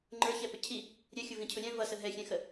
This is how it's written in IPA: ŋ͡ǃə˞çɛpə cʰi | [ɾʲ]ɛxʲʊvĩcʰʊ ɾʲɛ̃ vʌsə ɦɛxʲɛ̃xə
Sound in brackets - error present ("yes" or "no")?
no